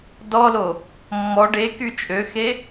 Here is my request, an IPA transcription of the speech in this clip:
d ɔ l o | mː ɔ ɖ e k y t͡ʃʼ ø x e

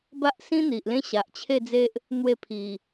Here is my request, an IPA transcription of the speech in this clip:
b a˦ ʔ s ĩ˦ n̪ i˨ ʔ l ẽ˦ ɕ a˨ ʔ t͡ɕʰ e˥˧ d͡z e˦ ʔ | n̪ w e˥˧ pʰ i˨˩

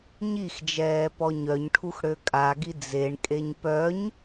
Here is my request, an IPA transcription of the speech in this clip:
ɲ i x d͡ʒ ɛː p ɔ ɲ œ ɲ ʈʰ u x ɽ ø kʼ a ɡ i d͡z e ɳ kʼ e ɲ p œ ɲ

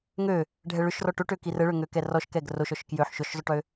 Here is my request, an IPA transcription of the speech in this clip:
ŋ ø | ɖʱ ɛ ɭ ʏ ʃ r ɔ ʈ o ʈ ø k i r ə ɭ ø ŋ ø k ɛ r ɔ ʃ k ɛ ɡ r o ʃ ɔ ʃ k j ø ħ ʃ ʊ ʃ zˤ ʏ ʈ ø

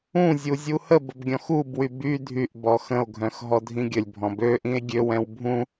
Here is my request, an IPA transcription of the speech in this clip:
ũ zʲ u zʲ u h ə b ə b ɡʲ ɔ̃ x u b w y b y dʱ y ʔ b ɔ x ə̃ o̯ ɡʱ œ̃ x ɦ ɔ dʱ ĩ ɡʲ ə lʲ bʱ ɔ̃ b ø ʔ ĩ e̯ ɡʲ ø w ɛ̃ w bʱ ũ

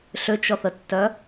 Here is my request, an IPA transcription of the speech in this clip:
ɬ ʏ t͡ʃ ɔ θ ə tː œ

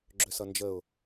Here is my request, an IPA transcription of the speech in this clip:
ɡ͡ǁ ʏ s ʌ n d͡ʒ ə ʊ̯

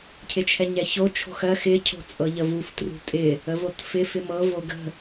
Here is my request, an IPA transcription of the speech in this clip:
cʰ ɪ t͡ʃʰ ɛ ɲ ɛ ç o t͡ʃʰ o̤ x ɜ x ɪ cʰ o̤ t͡sʼ ɤ ʎ ə v u f t r ṳ tʼ ɪ | ə v o t f ɪ f ɪ m ɤ v o ɡ ə̤

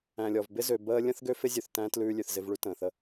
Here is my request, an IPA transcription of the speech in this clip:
æ̃˨ lʲ ɔ˨ v b ɪ˦ z ø˨ b əː˦ lʲ ə̃˦ θ ɡ ø˦ f ɪ˦ zʲ ʉ˨ θ t æ̃˦ t l ʉː˧ lʲ ʉ˨ θ z ɪ˧ v ɭ ʉ˦ t ə̃ː˨ θ ə˦

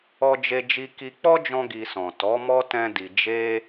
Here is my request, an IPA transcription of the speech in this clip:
ɔ˦ d͡ʒ e˦ d͡ʒ i˦ k i˦ k͡p ɔ˦ d͡ʒ ɔ̃˧ ɡ i˧ s ɔ̃˨ t ɔ˨˦ m ɔ˦ t ɛ̃˦ d i˧ d͡ʒ e˦

